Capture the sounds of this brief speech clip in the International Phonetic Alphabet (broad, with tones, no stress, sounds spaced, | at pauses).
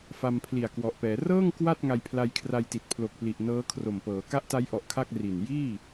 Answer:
f a˧ m pʰ l i˨˩ a̯ k w ɔ˨˩ ʔ p ɛː˩˦ r ɤː˥˩ ŋ k w a˥˩ t̚ ŋ a˧ j pʰ l a˧ j kʰ r a˧ j t i˨˩ t̚ pʰ l o˨˩ k̚ p l i˨˩ ʔ n ɤː˦˥ kʰ r o˨˩ m p ɤː˩˦ k a˦˥ ʔ t a˦˥ j ʔ ɔ˨˩ ʔ kʰ a˥˩ k̚ r i˨˩ n j iː˥˩